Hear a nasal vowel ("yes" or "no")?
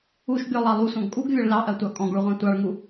yes